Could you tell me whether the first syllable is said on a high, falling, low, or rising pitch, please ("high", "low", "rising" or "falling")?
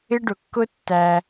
high